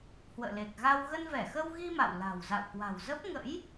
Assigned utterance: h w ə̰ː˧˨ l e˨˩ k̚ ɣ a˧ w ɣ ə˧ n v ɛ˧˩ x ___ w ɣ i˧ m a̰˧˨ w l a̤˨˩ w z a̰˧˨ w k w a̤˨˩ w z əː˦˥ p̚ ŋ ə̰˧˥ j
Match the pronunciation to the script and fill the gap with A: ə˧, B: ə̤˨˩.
A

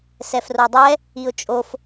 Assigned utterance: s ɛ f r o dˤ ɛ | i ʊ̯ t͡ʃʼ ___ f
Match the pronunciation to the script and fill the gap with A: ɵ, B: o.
B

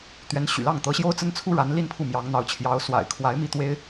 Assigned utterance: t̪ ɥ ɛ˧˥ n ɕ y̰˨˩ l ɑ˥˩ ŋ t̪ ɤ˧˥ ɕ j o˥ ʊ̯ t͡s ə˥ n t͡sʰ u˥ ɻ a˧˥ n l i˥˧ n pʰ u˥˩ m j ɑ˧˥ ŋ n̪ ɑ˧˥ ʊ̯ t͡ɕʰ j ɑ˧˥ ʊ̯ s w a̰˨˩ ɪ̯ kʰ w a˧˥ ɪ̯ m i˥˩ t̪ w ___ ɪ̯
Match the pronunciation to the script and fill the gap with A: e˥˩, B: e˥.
B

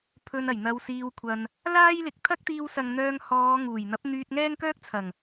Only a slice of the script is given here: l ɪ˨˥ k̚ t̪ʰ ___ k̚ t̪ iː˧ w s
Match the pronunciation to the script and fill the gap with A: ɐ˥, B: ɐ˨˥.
A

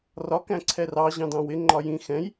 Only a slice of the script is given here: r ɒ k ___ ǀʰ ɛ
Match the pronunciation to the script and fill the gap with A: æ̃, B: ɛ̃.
A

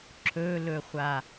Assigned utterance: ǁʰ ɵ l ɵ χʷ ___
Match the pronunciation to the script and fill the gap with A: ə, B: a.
B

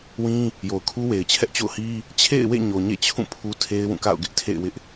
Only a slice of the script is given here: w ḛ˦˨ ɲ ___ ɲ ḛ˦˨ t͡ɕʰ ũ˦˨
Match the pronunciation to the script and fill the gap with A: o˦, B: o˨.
B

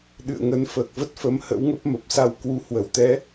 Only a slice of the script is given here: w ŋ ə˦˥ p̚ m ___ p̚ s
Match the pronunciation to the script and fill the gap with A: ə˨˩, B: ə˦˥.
A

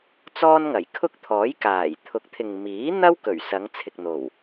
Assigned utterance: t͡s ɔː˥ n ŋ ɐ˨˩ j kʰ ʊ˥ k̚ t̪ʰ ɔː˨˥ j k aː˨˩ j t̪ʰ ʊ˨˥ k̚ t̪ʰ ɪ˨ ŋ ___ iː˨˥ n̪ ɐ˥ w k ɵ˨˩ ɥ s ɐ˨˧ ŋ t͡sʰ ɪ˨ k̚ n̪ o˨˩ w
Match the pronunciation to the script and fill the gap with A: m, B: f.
A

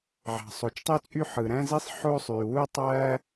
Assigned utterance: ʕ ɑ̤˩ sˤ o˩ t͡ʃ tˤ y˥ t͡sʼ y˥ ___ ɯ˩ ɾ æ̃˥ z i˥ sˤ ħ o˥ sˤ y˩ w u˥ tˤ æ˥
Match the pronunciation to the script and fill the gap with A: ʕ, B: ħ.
B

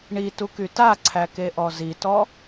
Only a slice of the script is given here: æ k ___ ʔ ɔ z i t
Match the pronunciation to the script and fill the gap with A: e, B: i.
A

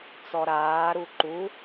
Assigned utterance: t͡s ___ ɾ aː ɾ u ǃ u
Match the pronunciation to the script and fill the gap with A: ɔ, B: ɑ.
A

